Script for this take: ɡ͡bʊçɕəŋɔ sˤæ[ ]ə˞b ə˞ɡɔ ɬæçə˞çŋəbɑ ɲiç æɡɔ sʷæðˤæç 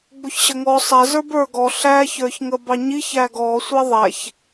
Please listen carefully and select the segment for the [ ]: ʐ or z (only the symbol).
z